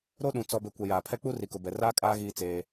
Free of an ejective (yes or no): no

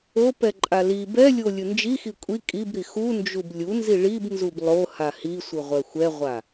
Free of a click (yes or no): no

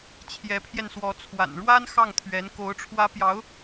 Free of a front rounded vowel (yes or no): yes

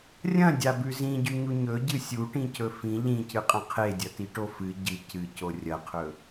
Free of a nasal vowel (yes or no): no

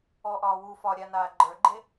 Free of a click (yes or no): no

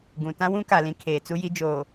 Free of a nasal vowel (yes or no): no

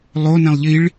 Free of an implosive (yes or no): yes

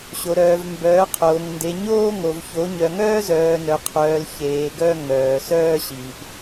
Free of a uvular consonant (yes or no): no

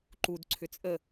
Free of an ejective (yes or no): no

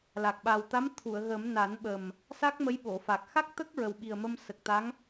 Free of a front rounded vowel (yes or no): yes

